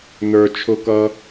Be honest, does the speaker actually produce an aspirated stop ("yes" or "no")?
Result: yes